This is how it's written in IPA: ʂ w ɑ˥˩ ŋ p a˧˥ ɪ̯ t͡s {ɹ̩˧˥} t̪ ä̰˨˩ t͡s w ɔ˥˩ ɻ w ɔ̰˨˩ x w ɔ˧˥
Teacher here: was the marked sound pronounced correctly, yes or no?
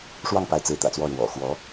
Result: yes